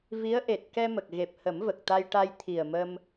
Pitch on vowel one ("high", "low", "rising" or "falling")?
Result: rising